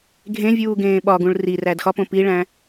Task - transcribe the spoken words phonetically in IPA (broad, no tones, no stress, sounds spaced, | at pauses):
ɡʱ ẽ vʲ uː ɡ ẽː ɓ ɒ ɡ ũ ɭ r i r æ d x ɒ p õ p i ɭ æ̃